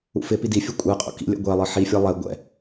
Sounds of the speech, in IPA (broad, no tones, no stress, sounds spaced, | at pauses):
ṵ f ɪ p i d i fʲ u kʷʼ ɛ qʼ ṵ k ḭ lʲ ɛ̰ ɡʷ ɛ lˠ ɤ ħ i fʲ ɤ lˠ ɛ ɡʷ ɛ̰